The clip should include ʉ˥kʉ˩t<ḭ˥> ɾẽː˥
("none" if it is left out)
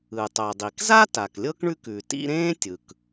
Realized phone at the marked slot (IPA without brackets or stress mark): ḭ˥